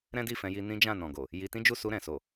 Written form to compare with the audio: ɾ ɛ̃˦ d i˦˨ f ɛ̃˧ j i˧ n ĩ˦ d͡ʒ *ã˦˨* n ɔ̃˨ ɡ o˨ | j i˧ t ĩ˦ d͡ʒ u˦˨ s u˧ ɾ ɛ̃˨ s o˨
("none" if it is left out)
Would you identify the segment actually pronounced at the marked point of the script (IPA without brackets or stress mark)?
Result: ã˦˨